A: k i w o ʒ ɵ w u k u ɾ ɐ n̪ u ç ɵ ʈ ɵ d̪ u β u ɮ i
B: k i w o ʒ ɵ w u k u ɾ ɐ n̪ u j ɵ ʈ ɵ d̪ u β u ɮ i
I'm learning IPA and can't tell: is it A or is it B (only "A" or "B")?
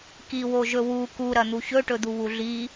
A